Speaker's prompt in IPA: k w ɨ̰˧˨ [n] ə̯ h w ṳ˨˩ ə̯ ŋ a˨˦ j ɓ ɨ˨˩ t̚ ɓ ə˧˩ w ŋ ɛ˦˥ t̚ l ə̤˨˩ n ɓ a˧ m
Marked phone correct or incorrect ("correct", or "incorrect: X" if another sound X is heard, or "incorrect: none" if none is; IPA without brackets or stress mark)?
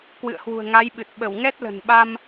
incorrect: none